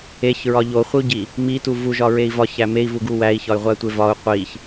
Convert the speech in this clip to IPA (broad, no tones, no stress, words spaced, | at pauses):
eçɹɒ ʎoχʷiu̯ɟi | mitu vuʒɒɹei̯ vɒçæ mei̯vuɡu wæi̯çɒy̯ʁʷætʷe vɒu̯ qʷiç